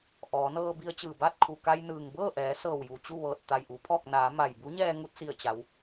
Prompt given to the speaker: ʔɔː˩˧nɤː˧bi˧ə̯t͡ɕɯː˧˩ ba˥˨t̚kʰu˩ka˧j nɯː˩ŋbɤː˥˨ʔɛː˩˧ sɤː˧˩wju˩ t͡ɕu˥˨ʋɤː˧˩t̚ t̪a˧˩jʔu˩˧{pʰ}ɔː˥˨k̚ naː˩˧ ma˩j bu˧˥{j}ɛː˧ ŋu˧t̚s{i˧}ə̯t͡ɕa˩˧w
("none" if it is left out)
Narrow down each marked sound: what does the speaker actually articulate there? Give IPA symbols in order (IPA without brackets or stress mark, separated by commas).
pʰ, ɲ, i˧˩